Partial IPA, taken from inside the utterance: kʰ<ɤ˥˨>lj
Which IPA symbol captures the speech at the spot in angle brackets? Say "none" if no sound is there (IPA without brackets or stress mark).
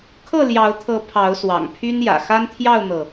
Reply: ɤ˥˨